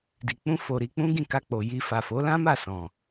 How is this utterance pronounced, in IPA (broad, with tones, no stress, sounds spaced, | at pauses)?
d i˨ k͡p ũ˧ f o˨ ɾ i˧ k͡p ũ˦ ɡ ĩ˦˨ k a˧ k͡p o˨ j i˧ f a˨ f o˨˦ l ã˦ m a˦˨ s ɔ̃˨